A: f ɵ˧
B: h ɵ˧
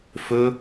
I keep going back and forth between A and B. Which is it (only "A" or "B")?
A